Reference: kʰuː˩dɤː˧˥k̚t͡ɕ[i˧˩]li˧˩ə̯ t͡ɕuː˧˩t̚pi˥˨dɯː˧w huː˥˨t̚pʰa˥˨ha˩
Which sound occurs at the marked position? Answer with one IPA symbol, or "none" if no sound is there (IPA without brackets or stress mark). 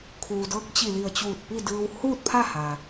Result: i˧˩